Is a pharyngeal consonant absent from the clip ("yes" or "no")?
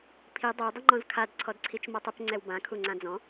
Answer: yes